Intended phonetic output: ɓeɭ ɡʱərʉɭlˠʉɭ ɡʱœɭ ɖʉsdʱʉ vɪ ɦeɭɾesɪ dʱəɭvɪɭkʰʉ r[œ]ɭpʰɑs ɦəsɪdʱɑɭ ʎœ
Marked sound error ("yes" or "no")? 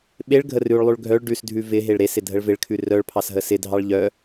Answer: no